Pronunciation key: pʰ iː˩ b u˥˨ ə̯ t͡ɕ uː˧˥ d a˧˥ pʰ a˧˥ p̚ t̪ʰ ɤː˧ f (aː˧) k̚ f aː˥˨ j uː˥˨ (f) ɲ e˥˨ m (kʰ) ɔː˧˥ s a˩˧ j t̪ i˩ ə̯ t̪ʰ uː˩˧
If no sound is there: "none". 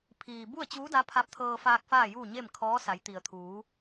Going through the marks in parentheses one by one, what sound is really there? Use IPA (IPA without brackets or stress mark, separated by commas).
aː˧, none, kʰ